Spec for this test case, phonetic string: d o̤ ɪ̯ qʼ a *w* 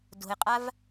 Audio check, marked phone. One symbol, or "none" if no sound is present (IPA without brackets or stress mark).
v